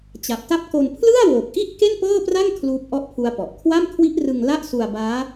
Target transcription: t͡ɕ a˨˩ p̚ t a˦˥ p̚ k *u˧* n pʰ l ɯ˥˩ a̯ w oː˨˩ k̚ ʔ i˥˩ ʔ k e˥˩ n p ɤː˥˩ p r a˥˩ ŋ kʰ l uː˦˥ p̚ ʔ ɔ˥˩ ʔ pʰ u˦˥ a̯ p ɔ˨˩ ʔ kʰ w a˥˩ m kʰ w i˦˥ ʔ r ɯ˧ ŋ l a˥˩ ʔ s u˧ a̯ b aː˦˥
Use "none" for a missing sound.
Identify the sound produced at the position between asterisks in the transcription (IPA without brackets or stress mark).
o˧